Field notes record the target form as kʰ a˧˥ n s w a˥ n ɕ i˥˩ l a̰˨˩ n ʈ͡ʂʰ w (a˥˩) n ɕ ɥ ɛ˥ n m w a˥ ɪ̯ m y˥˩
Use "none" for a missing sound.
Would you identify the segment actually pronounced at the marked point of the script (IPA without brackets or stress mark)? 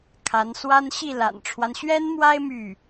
a˦